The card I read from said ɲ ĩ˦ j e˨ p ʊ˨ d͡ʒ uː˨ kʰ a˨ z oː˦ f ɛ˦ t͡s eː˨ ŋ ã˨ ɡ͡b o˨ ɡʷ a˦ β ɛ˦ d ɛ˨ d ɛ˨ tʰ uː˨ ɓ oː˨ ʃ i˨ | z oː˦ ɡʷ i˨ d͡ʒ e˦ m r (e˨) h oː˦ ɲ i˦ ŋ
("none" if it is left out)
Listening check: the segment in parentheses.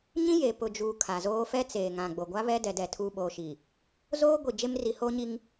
i˨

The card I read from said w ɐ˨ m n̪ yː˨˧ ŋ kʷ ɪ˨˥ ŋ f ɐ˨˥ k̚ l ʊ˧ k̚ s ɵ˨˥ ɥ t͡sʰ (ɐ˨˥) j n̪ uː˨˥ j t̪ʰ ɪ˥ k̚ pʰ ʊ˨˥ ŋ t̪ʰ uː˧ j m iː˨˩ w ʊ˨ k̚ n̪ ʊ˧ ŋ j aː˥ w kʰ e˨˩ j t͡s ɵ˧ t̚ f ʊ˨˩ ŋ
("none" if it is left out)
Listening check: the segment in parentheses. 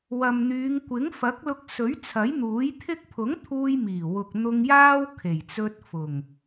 ɐ˨˥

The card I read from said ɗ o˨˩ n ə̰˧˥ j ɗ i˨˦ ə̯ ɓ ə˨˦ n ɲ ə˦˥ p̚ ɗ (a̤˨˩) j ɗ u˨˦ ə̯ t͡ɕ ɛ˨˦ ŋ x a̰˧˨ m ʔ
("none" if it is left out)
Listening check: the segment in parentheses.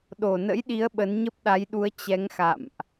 a˨˦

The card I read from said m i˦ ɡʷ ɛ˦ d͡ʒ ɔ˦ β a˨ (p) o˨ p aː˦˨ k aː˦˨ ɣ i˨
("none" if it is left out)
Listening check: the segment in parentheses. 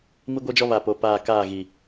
p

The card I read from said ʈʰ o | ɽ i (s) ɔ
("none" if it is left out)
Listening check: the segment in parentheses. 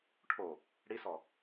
s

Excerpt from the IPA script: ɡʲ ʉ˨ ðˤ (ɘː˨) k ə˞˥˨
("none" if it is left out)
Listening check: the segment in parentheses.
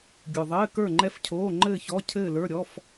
ɘː˧˥˧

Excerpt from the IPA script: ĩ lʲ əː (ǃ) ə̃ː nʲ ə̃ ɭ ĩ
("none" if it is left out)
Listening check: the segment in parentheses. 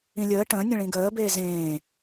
ʈ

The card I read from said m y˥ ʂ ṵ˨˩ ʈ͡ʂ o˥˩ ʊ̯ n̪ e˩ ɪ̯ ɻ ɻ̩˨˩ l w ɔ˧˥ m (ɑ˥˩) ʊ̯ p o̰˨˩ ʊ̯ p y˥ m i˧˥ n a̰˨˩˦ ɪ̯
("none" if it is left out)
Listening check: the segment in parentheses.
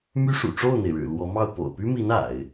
ɑ˥˩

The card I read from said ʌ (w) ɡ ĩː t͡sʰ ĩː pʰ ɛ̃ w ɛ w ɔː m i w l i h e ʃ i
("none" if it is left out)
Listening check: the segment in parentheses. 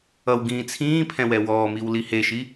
w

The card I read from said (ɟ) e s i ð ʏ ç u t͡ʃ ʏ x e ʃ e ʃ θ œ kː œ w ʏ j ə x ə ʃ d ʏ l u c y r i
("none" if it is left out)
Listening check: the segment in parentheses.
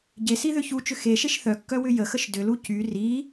ɟ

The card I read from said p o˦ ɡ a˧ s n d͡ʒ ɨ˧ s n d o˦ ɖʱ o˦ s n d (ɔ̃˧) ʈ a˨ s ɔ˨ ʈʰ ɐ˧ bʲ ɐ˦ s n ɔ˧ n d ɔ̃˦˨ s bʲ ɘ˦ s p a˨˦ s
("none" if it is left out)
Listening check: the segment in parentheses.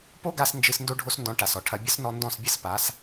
ɔ̃˧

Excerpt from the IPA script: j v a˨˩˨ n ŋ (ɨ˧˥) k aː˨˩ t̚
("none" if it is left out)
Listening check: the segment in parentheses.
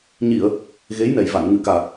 ɨ˨˩˨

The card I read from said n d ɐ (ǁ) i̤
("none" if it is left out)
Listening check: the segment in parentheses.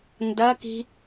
k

